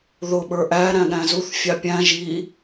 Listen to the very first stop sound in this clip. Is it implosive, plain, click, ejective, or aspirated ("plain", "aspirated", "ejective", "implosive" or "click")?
implosive